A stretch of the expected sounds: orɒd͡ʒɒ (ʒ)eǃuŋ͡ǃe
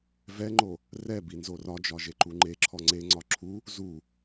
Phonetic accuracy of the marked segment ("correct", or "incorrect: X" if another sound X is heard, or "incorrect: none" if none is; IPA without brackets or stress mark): correct